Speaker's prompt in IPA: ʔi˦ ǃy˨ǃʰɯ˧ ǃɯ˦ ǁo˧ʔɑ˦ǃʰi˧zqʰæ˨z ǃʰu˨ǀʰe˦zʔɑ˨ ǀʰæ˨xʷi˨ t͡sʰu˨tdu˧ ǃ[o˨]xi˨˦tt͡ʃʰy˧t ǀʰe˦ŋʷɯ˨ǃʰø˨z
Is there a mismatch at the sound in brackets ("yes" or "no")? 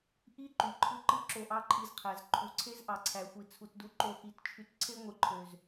yes